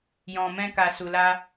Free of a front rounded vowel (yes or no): yes